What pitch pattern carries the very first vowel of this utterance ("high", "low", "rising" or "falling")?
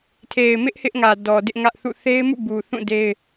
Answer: low